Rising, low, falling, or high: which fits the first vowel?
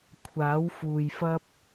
rising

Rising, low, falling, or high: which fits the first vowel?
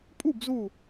falling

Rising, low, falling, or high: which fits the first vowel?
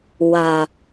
low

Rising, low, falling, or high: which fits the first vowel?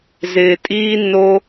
low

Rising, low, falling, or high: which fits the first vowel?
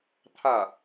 falling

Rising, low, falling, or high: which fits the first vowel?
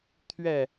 falling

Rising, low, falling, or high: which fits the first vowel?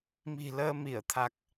low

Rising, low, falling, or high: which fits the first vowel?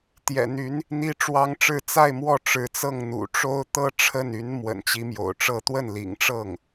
low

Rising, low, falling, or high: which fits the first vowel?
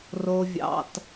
low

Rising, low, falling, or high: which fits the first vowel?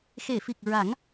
low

